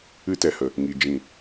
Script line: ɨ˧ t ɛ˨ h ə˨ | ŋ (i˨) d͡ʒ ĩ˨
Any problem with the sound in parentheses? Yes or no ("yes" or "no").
no